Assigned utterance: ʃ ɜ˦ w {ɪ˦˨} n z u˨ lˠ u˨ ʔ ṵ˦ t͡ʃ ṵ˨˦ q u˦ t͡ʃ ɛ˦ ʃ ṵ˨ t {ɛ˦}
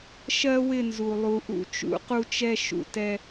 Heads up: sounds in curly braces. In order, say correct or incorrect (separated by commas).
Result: correct, correct